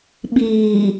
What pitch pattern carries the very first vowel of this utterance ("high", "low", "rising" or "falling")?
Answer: low